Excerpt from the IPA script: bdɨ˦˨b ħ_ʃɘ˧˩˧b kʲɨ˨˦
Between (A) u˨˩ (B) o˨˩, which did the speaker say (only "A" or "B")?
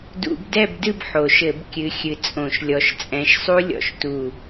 B